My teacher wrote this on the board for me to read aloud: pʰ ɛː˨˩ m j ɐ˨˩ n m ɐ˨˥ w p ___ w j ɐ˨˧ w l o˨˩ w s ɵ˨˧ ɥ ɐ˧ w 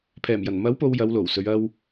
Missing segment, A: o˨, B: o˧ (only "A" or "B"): A